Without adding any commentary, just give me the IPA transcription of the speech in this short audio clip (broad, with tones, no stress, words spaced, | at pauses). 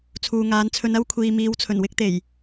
t͡sʰuː˨ŋaː˨˧nt͡sʰɵ˧n ɐ˥wkʷʰiː˨miː˨˧w t͡sʰɵ˨˩nwɪ˥k̚t̪e˨˩j